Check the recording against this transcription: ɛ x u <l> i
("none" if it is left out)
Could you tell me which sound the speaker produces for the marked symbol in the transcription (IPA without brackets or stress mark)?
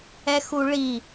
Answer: ɭ